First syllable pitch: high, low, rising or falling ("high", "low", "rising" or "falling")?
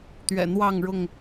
low